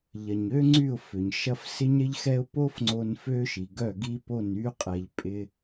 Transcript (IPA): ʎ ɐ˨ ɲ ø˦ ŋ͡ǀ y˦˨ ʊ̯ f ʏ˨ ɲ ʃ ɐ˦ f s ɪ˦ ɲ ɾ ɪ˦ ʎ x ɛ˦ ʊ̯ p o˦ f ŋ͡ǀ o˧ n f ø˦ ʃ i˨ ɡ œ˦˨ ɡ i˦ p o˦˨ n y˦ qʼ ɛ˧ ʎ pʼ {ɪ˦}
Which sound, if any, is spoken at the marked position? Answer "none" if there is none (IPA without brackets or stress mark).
ɪ˦